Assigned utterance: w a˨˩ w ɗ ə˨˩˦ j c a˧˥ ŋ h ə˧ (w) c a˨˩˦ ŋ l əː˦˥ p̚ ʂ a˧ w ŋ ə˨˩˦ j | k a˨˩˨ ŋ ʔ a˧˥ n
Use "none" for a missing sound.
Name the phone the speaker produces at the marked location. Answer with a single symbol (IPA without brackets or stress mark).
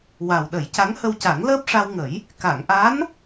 w